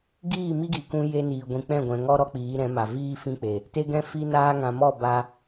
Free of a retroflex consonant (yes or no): yes